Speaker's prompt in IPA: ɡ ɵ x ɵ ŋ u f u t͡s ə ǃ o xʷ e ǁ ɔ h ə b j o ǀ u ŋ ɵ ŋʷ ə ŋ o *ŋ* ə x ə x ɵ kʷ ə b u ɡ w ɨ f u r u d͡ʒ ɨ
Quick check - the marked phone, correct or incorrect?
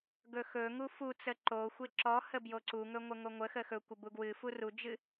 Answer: incorrect